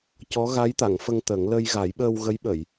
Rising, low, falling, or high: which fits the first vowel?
rising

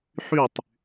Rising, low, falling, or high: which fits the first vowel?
falling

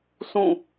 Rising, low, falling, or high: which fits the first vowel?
falling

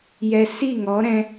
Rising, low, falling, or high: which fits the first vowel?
low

